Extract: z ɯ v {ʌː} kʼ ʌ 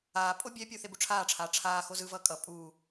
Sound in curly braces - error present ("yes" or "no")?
no